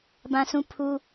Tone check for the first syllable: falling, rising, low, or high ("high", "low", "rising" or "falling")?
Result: high